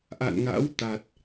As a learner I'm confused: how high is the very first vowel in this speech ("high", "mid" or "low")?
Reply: low